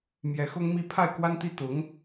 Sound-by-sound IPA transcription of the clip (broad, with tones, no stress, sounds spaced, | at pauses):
m j ɛ˧˥ x ʊ˥ ŋ m i˥˧ pʰ a˥˩ ɪ̯ k w a˥ n t̪ i˥ t̪ ʊ˧˥ ŋ